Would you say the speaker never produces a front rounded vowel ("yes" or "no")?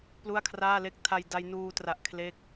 yes